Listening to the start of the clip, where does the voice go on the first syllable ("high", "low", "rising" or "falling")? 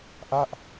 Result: falling